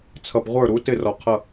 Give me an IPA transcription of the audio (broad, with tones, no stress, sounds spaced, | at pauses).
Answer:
t͡sʰ ʌ˨ b ʁʷ ə˞˦˨ ɾ u˨˥ t ɪ˦˨ r ɔ˨ qʰ ʌ˦˨